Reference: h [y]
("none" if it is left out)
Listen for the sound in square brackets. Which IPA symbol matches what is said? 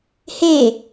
e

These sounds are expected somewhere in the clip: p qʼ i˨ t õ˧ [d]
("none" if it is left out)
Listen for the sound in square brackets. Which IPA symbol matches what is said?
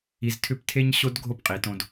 d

